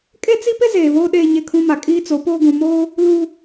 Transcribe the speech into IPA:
kʼ e˦ t͡s i˦ p ɪ˦ z eː˨ β oː˦ ɗ eː˦ ɲ e˦ kʰ ũ˦ m a˨ kʼ iː˦ t͡s o˨˦ p oː˦ ɡ ũ˨ m oː˦ | l u˦

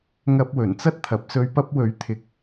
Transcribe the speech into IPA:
ŋ ɐ˧ p̚ w ɵ˨˩ n t͡s ɐ˥ t̚ t̪ʰ ɐ˨ p̚ s ɵ˧ ɥ p ɐ˧ p̚ w ɵ˨˥ ɥ t̪ʰ ɪ˨ k̚

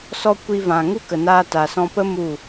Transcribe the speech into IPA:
s ɔ˧ kʷ i˧ v ã˨ ŋ u˦ k ə˨ n aː˧ t a˨ s ɔ̃˧ p ə˦ m u˦˨

